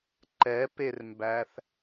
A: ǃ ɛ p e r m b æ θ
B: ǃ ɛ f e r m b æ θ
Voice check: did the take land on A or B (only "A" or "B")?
A